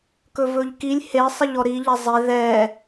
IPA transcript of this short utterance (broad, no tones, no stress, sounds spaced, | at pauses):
k ɵ v ɵ ʎ k i lʲ h e sˤ ɪ ʎ ɔ ɾ i ʎ ɛ zˤ e ð ɛ